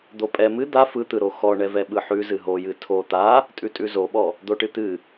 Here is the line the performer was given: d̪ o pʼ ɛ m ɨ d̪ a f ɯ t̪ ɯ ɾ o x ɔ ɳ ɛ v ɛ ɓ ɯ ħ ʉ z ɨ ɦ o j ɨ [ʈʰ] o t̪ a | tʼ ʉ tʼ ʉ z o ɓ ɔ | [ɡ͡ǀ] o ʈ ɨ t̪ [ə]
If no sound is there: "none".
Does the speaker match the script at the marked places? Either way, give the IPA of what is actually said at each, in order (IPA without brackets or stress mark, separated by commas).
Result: tʰ, d̪, ɨ